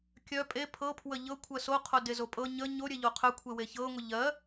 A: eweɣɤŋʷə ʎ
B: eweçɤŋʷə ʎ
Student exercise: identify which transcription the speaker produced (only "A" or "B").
B